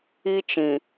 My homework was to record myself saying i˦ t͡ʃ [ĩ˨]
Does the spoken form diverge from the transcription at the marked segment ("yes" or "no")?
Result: no